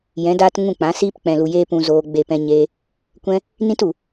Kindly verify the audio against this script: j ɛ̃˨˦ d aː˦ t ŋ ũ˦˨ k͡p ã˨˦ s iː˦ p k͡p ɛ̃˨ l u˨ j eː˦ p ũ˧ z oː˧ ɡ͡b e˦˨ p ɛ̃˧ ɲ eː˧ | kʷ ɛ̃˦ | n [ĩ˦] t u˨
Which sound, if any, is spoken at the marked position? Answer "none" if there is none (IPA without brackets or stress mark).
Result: ĩ˦